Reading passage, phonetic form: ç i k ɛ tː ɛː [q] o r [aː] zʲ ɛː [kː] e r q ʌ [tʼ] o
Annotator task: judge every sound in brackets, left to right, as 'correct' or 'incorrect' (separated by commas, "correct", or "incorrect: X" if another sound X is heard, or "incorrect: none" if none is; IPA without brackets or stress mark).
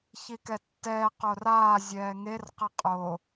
correct, correct, incorrect: ŋ, incorrect: qʼ